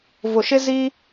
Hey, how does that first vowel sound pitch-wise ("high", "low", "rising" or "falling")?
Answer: low